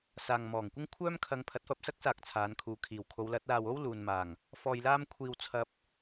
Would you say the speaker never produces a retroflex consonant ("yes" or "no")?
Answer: yes